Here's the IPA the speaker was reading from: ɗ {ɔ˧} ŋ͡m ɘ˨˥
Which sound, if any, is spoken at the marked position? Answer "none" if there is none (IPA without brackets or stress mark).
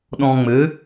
ɔ̃˧